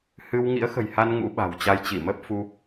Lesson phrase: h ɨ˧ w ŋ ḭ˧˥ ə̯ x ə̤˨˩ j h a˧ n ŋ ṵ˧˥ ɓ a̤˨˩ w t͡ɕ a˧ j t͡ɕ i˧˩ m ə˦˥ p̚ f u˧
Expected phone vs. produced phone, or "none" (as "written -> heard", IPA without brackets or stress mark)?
none